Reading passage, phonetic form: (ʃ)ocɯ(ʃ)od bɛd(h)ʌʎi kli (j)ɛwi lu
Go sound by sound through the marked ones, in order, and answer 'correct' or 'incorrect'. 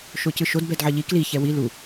correct, correct, incorrect, incorrect

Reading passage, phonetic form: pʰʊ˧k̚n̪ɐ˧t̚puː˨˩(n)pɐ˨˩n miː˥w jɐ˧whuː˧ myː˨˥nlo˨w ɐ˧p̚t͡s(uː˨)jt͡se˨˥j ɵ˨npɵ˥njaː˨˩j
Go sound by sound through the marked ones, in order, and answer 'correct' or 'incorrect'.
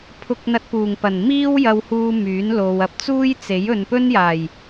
incorrect, incorrect

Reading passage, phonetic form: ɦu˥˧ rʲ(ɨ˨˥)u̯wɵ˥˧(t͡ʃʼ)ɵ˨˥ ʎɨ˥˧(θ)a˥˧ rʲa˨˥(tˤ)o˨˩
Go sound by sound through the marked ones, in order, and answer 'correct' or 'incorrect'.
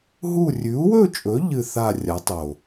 incorrect, correct, correct, correct

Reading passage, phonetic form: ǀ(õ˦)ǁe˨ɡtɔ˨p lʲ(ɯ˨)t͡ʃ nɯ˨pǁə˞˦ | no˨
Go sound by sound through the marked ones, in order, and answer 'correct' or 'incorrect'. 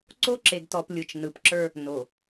incorrect, correct

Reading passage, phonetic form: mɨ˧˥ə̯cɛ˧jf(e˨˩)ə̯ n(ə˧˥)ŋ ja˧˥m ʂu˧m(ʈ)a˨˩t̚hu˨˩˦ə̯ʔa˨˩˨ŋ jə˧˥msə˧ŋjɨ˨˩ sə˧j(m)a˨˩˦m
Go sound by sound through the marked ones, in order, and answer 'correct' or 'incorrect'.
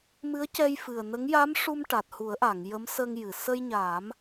incorrect, correct, correct, incorrect

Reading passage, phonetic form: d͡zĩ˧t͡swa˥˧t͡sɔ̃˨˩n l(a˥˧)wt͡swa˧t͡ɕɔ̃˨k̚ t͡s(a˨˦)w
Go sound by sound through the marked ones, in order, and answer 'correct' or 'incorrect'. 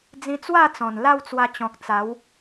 correct, correct

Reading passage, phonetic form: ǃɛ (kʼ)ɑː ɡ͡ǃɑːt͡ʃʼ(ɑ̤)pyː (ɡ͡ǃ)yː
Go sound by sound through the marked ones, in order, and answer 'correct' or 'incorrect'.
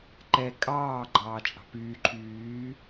correct, correct, incorrect

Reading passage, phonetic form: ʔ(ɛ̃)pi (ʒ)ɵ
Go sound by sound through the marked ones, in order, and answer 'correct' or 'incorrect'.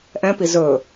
correct, incorrect

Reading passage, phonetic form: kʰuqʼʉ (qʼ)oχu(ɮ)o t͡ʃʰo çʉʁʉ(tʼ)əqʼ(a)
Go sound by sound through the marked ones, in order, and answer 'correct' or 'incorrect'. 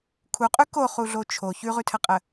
incorrect, correct, incorrect, incorrect

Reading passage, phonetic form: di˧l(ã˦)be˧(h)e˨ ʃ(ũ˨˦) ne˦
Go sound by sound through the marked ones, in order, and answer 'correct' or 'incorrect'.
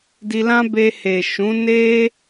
correct, correct, correct

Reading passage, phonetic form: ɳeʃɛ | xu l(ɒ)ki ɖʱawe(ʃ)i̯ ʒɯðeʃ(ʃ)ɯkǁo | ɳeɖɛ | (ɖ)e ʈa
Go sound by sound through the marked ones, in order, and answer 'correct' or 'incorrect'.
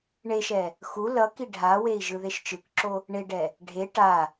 incorrect, incorrect, incorrect, incorrect

